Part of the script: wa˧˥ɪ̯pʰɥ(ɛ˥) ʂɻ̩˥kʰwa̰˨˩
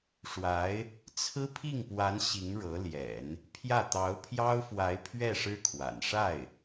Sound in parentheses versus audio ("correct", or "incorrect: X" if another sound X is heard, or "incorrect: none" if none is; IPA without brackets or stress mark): incorrect: ɛ˥˩